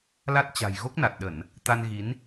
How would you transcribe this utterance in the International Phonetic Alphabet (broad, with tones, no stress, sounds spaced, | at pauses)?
l a˦˥ t̚ t͡ɕ a̤˨˩ j ɣ o˦˥ k̚ n a˨˩ t̚ ɗ ə˧˩˨ n | t̪ a˧ n ɣ i˨˦ n